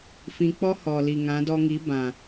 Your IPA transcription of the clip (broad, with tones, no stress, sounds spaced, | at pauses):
f ĩ˧ k͡p ɔ˦ h ɔ˨ l i˨ ŋ ã˨˦ d ɔ˧ ŋ i˨˦ b ã˨